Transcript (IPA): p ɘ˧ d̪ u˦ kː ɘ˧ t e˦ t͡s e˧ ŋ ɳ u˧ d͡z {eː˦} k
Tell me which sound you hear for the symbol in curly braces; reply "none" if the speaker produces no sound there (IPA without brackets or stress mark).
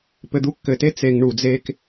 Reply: eː˦